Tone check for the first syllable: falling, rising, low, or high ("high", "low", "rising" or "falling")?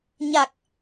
low